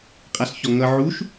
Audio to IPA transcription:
qʼ a s ç ɔ ŋ ʌ ʕ u ʃ

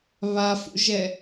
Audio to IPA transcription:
β a f ṵ ʒ ɛ

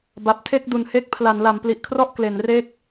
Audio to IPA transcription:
b a˨˩ p̚ tʰ e˥˩ k̚ d u˨˩ n h e˦˥ k̚ pʰ l a˩˦ n l a˩˦ m p l i˨˩ ʔ kʰ r ɔ˥˩ ʔ k l e˩˦ n r e˦˥ k̚

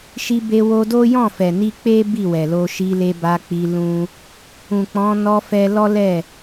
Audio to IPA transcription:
ʃ i˧ b e˧ w o˧ d o˦ j ɔ̃˦˨ f ɛ˨ n i˧ k͡p e˦ b i˦˨ w ɛ˨ l o˧ ʃ i˧ l e˧ b a˧ k͡p i˧ l ũ˦ | ũ˨ k͡p ɔ̃˨˦ n ɔ˧ f ɛ˧ l ɔ˦ l ɛ˦˨

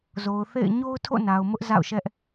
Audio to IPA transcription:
z o˨ ʊ̯ θ ḛ˦˨ ɪ̯ ɲ o˦ ʊ̯ tʰ o̰˦˨ n a˨ ʊ̯ m ʊ˦ ʔ z a̰˦˨ ʊ̯ ʃ ɛ˦ ʔ

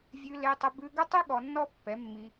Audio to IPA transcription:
vʲ ʉ˧ l e˧ tˤ ə˧ b ʉ˧ ɡ ə˦ tˤ ʉ˦ ɠ ɔ˧ nː ɔ˦ pː ɛ˨˦ mː i˧

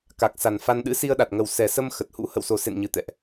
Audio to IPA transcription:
k a˨˩ k̚ s a˨˩ n f a˧ n ɗ ɨ̰˧˥ s i˧ ə̯ ɗ a˨˩ t̚ ŋ ə˨˩ w s ɛ˨˩ s ə˧ m x ə˨˩ t̚ h ṵ˧˥ h ə̰˧˨ w s o˨˩ s ḛ˧˨ n ɲ ɨ˨˩ t̪ ɛ̰˧˨ ʔ

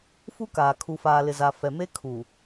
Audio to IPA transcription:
f u˦ k aː˨ kʰ u˨ f aː˨ l ɪ˨ z a˨ f ɛ˨ m e˦ kʰ u˨

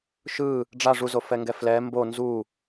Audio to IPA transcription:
ʃ ɯ | ɖ͡ʐ a ʐ u z o f ɛ ŋ ɡ ɛ f l ɛ m b o n z u

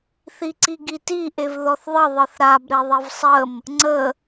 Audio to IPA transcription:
θ i ǀ i ɡ i t i ʔ e v ð ɔ θ ðˤ ə ðˤ ɨ θ ɾ a b ɾ e ðˤ i v sˤ ə m | ŋ͡ǀ ə

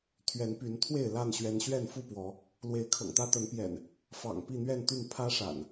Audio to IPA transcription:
t̪ʰ ɥ ɛ˨˦ n p y˨˦ n t̪ʰ w e˥˨ ɪ̯ l a˥˨ n ɕ ɥ ɛ˨˦ n ɕ ɥ ɛ˥˨ n f u˥˨ p w ɔ˨˦ | l w e˨˦ ɪ̯ kʰ ɤ̰˨˩ ŋ t̪ ä˦ t̪ ə˨˦ n p j ɛ̰˨˩ n | f ɑ̰˨˩ ŋ p i˥˨ n̪ ɥ ɛ˥˨ n t̪ y˥˨ n pʰ ä˦ ʂ a̰˨˩ n

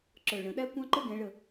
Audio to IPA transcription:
ǁ ə˞˧˩ ɭ ə̃˨˩˦ ɗ æ˥ kʷ ɑ̃˥ ǃ ə˥ ɡ ɛ̃˨˦ ɭ ə˧˩

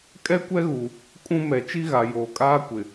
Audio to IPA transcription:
kʼ ɛ˦ kʷ ɛ˦ ɣ u˨ | kʼ ũ˦ m ɛ˨ t͡ʃ i˦ ɣ a˨ j oː˨ kʼ aː˦ kʷ ɪ˨

